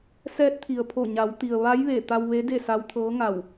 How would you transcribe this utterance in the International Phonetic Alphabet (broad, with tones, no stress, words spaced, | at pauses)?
sɛː˧˥t̚t̪ʰi˩ə̯pʰo˧˩ ɲa˩˧wt̪i˩ə̯ ʋa˧˥jʋe˧˩ t̪a˧wʋe˧˥ de˥˨sa˧˥wt̪ʰɤː˧˥ ŋa˧˩w